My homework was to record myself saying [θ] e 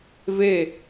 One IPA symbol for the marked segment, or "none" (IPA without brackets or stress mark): v